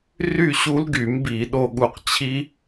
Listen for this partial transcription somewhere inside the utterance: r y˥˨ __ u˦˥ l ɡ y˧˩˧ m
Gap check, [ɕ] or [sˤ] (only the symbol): ɕ